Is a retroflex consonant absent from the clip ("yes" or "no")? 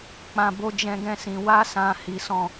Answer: yes